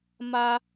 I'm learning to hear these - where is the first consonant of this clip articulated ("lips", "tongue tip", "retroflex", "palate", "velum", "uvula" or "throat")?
lips